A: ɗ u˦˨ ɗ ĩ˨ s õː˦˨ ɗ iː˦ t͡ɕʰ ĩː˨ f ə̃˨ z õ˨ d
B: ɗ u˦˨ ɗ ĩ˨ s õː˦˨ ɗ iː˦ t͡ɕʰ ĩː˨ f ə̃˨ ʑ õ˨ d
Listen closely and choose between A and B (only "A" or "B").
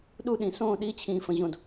B